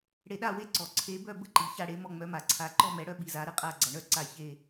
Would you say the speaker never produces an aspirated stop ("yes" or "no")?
no